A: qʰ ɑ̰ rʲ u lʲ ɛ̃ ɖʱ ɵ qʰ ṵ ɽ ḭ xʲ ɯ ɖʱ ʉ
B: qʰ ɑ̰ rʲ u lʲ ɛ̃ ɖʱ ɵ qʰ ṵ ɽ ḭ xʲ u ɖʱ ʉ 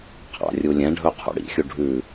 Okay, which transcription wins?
B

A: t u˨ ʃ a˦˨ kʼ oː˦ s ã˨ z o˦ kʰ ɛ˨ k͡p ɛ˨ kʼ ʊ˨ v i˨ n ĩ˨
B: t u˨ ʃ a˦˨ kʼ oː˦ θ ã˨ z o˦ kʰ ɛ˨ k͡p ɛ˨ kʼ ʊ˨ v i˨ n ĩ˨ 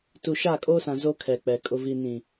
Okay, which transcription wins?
A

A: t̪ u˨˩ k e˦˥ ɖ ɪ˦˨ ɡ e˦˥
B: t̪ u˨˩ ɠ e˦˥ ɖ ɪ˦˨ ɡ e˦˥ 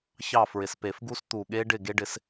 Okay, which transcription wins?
B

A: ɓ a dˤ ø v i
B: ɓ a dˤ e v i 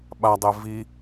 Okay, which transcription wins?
B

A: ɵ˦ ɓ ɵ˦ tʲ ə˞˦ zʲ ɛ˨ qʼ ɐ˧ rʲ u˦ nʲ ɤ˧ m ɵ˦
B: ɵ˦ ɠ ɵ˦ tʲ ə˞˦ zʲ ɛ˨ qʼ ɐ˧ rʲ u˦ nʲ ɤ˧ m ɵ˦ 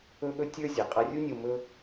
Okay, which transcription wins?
B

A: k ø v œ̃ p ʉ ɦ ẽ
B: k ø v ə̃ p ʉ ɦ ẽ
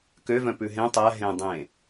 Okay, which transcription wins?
A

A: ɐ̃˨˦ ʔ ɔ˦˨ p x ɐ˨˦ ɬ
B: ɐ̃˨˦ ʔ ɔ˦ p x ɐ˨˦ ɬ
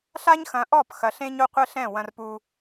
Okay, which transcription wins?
A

